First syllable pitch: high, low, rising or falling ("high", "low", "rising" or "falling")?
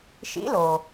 rising